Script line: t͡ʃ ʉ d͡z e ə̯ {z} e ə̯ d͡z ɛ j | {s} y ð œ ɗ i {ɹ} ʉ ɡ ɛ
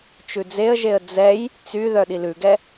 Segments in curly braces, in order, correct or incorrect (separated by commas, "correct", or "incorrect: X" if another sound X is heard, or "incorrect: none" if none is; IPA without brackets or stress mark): incorrect: ʒ, incorrect: t͡s, incorrect: l